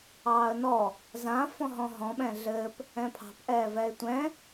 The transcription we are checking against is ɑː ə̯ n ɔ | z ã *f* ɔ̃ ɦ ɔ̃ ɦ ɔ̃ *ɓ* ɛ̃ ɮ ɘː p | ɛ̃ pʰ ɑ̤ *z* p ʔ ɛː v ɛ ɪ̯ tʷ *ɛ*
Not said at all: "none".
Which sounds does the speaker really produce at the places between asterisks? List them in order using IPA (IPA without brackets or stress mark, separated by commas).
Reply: f, ɓ, none, ɛ̃